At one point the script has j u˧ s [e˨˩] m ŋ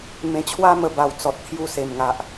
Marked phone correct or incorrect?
correct